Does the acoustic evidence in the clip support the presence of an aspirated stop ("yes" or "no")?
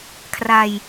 yes